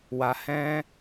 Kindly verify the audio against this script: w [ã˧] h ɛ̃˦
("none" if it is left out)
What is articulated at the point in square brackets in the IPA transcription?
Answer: a˧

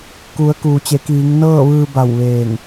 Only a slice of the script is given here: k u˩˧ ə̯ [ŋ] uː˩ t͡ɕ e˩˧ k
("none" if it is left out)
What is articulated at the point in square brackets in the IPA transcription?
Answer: k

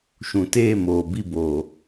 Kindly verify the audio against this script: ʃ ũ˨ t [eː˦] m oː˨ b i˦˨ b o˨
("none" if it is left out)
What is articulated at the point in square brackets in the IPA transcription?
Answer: eː˦˨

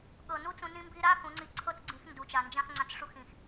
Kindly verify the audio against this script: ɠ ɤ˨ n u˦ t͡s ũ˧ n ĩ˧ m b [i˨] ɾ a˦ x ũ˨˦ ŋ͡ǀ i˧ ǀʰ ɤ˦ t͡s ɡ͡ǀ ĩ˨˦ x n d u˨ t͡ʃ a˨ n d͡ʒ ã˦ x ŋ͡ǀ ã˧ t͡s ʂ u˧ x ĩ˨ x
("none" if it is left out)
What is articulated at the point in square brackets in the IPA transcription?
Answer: i˧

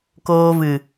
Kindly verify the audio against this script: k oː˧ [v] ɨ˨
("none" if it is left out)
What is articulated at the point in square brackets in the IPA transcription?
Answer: v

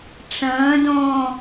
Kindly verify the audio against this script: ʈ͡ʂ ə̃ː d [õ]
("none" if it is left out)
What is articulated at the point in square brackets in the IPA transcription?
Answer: õː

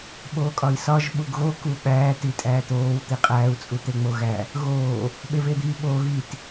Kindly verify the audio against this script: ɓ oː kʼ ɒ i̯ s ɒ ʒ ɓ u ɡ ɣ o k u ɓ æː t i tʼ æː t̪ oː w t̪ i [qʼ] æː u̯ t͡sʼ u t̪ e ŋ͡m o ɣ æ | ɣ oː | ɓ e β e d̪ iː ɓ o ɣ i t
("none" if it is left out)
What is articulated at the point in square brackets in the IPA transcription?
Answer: qʼ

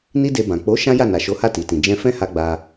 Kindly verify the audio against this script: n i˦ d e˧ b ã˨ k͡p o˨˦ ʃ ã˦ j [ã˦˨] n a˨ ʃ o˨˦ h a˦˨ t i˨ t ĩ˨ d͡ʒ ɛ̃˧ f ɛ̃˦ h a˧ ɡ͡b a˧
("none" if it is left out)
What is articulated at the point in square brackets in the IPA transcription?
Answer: a˦˨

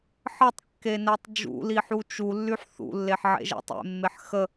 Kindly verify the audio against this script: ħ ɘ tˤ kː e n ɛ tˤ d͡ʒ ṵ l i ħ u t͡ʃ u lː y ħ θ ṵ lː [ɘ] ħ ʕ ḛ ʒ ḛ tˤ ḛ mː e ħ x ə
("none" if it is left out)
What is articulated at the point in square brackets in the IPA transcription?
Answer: e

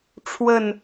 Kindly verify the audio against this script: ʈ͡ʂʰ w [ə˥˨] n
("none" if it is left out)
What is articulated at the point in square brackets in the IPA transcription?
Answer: ə˥˨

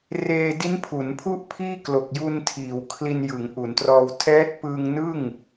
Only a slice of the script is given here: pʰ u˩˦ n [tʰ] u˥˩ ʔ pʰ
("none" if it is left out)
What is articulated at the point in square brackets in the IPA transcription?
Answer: pʰ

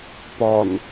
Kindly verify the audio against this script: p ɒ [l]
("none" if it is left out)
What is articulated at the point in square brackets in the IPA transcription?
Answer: n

